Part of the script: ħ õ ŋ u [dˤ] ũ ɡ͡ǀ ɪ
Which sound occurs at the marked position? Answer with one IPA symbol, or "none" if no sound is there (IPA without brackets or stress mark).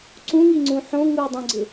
dˤ